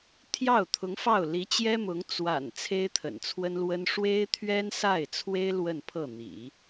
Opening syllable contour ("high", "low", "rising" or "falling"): falling